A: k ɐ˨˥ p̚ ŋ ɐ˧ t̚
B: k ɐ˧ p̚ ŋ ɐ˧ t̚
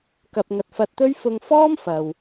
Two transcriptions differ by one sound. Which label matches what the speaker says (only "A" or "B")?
B